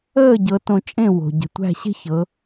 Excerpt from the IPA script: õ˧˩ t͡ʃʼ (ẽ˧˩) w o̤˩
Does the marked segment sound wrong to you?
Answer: yes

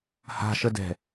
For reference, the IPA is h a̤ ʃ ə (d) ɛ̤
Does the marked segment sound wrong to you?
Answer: no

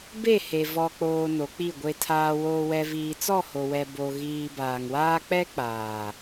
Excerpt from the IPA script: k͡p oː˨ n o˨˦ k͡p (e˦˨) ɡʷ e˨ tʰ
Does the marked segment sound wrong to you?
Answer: yes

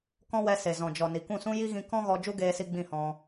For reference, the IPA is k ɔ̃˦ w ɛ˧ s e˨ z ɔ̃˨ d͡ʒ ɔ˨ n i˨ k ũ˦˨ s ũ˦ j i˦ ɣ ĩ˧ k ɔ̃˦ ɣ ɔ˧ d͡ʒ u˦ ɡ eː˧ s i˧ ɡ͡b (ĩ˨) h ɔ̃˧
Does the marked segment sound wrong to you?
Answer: yes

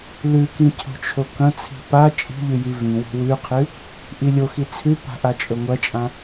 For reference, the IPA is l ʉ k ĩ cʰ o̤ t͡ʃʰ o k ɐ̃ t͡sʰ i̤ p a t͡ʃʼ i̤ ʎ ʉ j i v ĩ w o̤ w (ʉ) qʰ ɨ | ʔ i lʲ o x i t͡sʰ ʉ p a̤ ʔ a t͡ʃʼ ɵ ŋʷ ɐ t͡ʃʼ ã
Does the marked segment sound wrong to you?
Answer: no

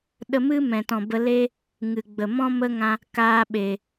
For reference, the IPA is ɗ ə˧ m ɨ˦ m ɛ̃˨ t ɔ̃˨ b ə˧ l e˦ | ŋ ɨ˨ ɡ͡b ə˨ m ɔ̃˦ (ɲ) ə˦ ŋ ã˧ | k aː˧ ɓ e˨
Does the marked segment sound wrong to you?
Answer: yes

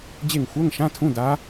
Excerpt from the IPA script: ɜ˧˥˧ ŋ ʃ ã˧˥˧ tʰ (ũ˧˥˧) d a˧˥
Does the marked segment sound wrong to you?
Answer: no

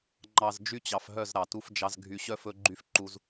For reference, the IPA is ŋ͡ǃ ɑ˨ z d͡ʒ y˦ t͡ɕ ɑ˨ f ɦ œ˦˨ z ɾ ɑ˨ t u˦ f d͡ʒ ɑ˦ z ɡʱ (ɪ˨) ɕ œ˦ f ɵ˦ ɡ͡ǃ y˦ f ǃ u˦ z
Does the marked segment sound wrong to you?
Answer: yes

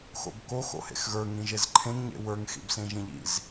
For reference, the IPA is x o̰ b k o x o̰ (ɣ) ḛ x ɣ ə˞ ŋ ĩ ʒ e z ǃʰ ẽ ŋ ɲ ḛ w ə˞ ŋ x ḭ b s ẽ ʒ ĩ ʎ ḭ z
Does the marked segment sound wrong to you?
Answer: yes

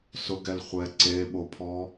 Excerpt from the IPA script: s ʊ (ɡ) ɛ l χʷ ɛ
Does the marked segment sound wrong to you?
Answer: no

